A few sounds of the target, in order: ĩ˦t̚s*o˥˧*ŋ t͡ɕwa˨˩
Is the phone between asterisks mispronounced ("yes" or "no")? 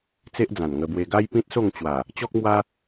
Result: no